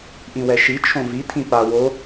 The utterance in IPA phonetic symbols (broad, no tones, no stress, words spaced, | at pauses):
ʔĩwɛʃi t͡ʃʰõvi tʰĩpa wo